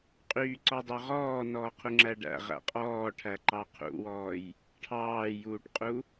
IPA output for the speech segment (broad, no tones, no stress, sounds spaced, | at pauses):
qʼ yː ǀ ɔ dˤ œ ʁ ɔː n ɔː qʰ u ŋ͡ǁ æ ɖ æ̰ ʁ æ̰ qʼ ɔː ʈʰ æ ǃ ɑ qʰ ṵ w ɔː j | ʈʰ ɑː j uː ʈ qʼ u